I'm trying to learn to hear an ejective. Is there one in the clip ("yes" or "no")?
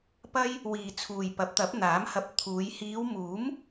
no